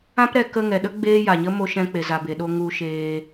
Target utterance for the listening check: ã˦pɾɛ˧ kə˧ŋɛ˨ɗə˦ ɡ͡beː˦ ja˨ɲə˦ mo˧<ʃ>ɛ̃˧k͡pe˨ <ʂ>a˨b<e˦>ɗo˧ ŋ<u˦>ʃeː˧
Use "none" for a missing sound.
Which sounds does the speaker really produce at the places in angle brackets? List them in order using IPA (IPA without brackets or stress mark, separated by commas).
ʃ, z, e˨, u˧